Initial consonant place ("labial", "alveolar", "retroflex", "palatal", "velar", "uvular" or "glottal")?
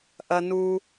glottal